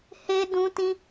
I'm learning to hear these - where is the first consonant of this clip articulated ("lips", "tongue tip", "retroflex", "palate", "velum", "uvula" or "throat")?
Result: throat